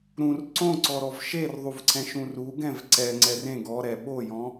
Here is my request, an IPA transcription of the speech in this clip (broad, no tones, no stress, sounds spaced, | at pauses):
ɾ ũ r ǀ õ ǀ ɔ ɾ ɔ v ʃ e r ðˤ u v ǀ ɛ̃ ʃ ũ r u ɡ ɛ̃ v ǀ ɛ ŋ͡ǀ ɛ r ẽ ɡ ɔ ɾ ɛ ɓ o j ɔ̃